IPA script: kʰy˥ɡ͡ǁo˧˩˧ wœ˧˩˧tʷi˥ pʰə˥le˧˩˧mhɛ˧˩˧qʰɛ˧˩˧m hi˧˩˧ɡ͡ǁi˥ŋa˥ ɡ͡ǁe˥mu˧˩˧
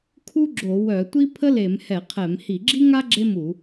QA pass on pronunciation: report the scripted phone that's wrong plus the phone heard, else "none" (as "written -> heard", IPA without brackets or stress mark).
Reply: y˥ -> u˥